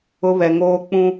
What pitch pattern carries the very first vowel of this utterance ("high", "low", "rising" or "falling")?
high